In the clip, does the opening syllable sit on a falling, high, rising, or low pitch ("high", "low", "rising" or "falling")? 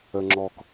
low